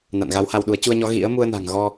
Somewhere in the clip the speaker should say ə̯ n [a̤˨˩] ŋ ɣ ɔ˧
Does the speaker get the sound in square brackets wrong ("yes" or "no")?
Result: no